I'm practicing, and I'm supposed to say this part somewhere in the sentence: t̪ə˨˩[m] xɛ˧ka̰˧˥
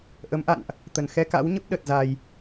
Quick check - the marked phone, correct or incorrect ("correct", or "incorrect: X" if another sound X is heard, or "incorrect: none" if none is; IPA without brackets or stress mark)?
incorrect: n